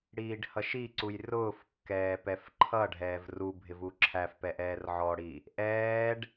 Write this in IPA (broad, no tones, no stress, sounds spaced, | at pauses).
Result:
ɽ iː ɖ h ʌ ʃ i ǀ u j r ʊː f kː ɛː p ɛ f ǃʰ ʌ ɖʱ ɛː v r u bʱ ɪ v u ǁʰ æ f p ɛ ʔ ɛː r ʕ ɔ ɽ i | ʔ ɛː ɖ